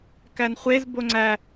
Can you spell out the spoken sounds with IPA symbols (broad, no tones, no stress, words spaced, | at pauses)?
kænχʷez boŋ͡ǀæ